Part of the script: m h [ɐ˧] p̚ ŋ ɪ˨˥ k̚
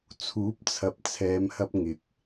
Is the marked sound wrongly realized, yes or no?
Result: no